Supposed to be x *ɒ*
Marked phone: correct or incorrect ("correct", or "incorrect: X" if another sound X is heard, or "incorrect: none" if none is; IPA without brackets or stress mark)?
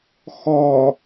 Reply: correct